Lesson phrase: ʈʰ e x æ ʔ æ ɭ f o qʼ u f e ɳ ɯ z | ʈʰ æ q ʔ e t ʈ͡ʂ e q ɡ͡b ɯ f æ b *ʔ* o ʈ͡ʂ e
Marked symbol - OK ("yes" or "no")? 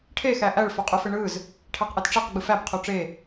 no